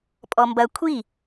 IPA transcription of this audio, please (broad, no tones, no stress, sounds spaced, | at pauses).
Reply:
pʼ ɔ m b ɐ kʷʰ i